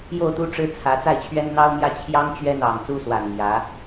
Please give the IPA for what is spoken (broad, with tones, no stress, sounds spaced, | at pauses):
j o˥˩ ʊ̯ t̪ u˥ ʈ͡ʂ ɻ̩˥ t͡sʰ ä˧˥ t͡s a˥˩ ɪ̯ t͡ɕʰ ɥ ɛ˥ n n̪ ɑ˥ ʊ̯ m j ä˥˩ t͡ɕʰ j ɑ˥ ŋ t͡ɕ ɥ ɛ˥ n̪ ɑ˨˩ ŋ t͡s u˥ s w a˨˩ n m j ä˧˥